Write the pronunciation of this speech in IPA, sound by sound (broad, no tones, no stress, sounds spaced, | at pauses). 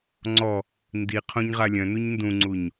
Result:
ŋ͡ǀ ɔ | n d i qʰ õ ɲ ʁ a lʲ œ̃ n u ɲ n d ũ ŋ͡ǀ u ɲ